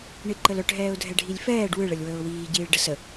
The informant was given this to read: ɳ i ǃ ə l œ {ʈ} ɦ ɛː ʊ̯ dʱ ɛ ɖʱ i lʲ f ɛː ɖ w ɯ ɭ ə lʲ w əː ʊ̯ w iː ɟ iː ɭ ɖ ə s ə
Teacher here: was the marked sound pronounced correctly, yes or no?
yes